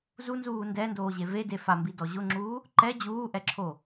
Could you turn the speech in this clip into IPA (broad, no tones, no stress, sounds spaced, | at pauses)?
z u n z uː n d ɛ n d oː ʑ e v e d e f a m b i d ɔ ʑ ʊ ŋ͡ǁ uː | ǃ ɛ d͡ʑ uː ʔ ɛ ǁʰ o